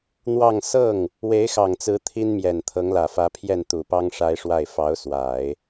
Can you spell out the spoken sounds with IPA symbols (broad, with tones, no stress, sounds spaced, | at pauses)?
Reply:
n̪ w ɑ˥˧ ŋ s ɤ˥˩ ŋ | w e˧˥ ɪ̯ x ɑ˨˩ ŋ t͡s ɹ̩˧˥ t̪ʰ i˥ n m j ɛ˨˩ n t̪ʰ ɤ˧˥ ŋ l ä˨˩ f ä˧˥ pʰ j ɛ˥˩ n t̪ u˨˩ p ɑ˥ ŋ ʂ a˥ ɪ̯ ʂ w a˥˩ ɪ̯ f ɑ˧˥ ʊ̯ s w a˨˩˦ ɪ̯